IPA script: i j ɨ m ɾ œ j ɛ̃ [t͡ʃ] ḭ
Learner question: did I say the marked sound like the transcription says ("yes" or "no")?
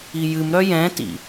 no